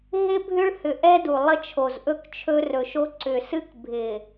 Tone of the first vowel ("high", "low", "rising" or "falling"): high